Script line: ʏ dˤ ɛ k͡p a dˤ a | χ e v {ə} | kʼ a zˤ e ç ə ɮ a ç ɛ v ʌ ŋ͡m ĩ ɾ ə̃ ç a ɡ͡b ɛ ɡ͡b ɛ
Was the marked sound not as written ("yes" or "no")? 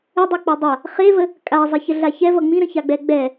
no